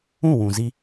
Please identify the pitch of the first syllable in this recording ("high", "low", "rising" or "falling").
falling